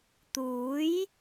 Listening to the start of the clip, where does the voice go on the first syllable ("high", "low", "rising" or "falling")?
rising